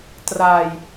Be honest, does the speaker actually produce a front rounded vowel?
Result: no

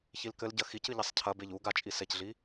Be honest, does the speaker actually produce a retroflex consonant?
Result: no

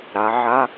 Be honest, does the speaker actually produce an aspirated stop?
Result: no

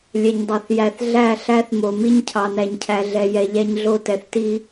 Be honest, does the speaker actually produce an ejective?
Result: no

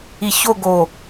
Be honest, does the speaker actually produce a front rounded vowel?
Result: no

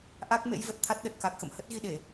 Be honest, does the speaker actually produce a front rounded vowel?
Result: no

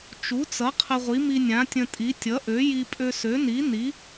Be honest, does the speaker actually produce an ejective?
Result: yes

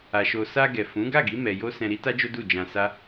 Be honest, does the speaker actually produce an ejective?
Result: no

